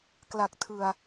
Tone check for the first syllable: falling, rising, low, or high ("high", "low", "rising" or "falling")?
low